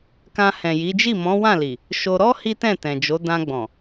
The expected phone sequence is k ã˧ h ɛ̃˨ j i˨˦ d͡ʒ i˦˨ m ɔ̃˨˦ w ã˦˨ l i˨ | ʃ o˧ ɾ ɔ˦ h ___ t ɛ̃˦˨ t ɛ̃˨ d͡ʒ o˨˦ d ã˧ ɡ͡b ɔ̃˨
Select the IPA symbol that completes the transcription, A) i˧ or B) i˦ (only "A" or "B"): B